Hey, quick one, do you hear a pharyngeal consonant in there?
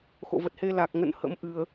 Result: no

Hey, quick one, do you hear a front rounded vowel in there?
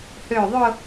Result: yes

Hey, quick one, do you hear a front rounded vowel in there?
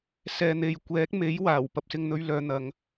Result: yes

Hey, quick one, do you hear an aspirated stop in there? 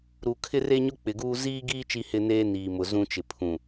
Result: yes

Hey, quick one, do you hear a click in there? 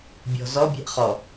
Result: no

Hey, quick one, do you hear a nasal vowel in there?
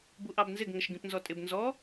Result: yes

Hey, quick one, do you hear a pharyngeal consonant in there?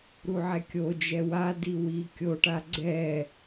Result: yes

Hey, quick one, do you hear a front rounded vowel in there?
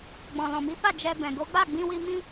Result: no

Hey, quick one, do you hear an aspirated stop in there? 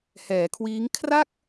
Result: yes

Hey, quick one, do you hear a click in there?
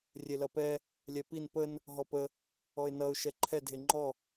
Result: yes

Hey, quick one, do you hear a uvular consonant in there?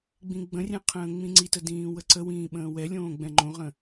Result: yes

